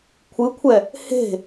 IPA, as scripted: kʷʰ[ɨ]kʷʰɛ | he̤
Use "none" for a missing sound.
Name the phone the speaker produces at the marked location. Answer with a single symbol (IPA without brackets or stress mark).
ɨ